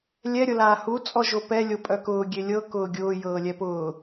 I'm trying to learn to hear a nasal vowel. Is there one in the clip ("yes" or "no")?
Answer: no